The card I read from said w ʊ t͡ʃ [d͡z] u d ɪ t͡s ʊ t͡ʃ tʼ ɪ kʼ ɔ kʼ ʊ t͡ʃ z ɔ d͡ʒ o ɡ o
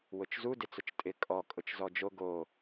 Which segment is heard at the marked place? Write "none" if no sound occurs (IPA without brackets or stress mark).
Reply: z